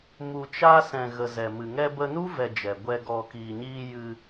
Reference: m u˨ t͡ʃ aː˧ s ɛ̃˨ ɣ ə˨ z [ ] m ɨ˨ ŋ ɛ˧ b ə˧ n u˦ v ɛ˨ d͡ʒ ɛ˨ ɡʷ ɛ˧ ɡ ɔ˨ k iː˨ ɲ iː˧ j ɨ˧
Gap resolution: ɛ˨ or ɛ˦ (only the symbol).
ɛ˨